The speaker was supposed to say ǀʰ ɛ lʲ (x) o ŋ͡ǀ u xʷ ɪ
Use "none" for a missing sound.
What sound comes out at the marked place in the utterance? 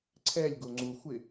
ɡ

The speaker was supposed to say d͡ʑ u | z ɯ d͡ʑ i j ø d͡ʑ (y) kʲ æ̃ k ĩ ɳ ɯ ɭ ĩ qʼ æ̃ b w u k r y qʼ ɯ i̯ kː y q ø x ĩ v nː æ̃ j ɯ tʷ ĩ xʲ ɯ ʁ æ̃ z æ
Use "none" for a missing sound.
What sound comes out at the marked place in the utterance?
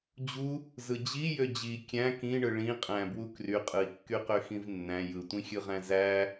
i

